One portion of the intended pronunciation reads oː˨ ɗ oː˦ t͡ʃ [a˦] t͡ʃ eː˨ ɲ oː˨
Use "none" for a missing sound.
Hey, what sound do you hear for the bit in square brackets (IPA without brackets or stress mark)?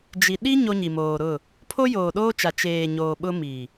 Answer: a˨